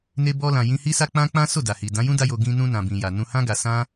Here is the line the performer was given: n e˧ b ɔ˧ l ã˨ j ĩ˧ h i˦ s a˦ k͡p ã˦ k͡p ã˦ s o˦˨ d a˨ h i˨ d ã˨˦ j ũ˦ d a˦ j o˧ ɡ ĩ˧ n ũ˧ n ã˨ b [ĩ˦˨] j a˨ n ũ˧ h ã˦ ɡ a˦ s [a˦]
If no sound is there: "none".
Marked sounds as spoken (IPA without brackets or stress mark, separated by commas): ĩ˨, ã˦